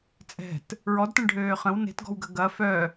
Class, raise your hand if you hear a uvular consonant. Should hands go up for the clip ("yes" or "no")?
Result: yes